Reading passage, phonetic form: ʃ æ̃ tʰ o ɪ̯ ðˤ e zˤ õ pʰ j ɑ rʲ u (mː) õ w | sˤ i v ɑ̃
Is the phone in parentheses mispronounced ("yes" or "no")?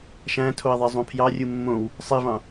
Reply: no